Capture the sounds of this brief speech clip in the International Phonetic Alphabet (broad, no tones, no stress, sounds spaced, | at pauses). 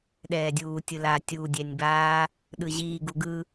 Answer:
ɗ ɛː dʲ uː tʲ ɯ l aː tʲ uː dʲ ɛ nʲ b aː | ɗ ɯ ʑ iː ɡ u ɡ ɯ